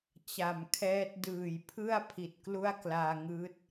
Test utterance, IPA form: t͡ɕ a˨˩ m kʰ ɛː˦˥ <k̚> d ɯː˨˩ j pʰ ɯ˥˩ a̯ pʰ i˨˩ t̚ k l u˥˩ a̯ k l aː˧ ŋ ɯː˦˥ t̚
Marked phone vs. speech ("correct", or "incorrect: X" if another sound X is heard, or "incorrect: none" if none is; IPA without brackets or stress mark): incorrect: t̚